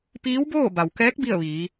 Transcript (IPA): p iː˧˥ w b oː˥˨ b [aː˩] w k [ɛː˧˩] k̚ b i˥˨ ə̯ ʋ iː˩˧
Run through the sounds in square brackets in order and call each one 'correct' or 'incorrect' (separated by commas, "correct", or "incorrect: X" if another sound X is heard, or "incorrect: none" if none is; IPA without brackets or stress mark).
incorrect: a˩, incorrect: ɛː˧˥